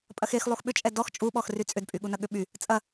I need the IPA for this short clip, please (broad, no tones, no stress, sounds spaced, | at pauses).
pʼ ɐ x e x lˠ u x ɓ ʏ t͡ʃʼ ɛ d ɔ x t͡ʃʼ u ɓ ɔ x r y t͡sʼ ʏ d pʼ y ɠ u n ɐ ɠ ʏ ɓ y | t͡sʼ ɐ